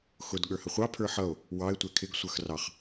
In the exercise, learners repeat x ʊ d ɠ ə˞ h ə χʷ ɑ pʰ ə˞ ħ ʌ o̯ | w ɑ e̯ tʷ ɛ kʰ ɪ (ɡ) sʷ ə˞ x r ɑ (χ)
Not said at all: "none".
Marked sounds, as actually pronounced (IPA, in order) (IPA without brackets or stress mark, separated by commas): ɡ, χ